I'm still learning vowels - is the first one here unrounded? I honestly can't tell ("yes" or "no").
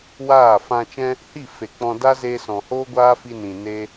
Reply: yes